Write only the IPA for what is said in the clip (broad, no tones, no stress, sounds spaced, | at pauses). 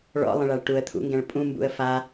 ɭ ɔ̰ lˠ ə̃ ɭ a ɭ ʈ u ə̯ t̪ʰ ṵ ŋ ɡ ɛ̃ ɭ pʼ ũ m b ṵ ə̯ f a